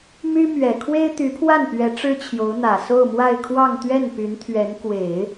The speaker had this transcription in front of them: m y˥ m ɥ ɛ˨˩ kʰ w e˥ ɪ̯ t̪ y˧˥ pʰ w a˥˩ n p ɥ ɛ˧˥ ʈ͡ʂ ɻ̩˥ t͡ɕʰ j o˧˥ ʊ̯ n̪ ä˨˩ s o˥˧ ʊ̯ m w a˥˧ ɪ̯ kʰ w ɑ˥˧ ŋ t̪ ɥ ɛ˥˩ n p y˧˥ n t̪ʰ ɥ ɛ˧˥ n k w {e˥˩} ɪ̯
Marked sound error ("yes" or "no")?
yes